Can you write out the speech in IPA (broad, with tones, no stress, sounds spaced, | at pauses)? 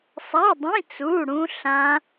sˤ a˧˥˧ dˤ ĩ˧˥˧ t͡s u˧˥˧ ɽ ũ˦˥ ɬ ã˦˥